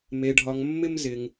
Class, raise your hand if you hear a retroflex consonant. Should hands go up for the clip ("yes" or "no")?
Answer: yes